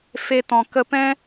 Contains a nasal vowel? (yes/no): yes